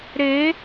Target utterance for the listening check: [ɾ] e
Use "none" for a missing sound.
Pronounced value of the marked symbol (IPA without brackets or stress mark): ɾ